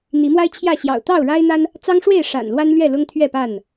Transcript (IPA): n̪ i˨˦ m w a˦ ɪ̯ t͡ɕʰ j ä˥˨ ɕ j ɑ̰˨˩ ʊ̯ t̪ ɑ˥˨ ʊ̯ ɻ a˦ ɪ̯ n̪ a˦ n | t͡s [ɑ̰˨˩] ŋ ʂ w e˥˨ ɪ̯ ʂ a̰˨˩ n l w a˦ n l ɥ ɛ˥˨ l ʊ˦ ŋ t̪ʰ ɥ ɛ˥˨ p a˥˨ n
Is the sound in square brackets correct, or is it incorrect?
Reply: incorrect